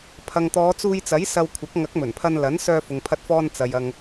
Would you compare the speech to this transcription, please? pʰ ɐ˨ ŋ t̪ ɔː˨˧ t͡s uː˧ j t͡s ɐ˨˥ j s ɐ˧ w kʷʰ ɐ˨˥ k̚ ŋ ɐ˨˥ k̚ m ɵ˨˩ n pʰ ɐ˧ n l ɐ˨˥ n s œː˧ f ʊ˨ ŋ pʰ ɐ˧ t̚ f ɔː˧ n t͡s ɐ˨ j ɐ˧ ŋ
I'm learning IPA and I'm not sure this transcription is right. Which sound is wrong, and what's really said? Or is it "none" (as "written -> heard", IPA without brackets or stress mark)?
none